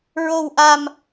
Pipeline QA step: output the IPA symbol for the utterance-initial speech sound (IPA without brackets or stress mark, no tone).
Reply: ɹ